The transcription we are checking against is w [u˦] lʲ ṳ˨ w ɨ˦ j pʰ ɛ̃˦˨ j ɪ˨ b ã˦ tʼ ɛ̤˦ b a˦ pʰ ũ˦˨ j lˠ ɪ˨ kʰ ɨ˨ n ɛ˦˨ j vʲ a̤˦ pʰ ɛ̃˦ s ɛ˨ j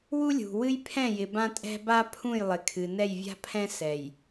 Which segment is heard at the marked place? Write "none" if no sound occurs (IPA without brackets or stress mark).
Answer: u˦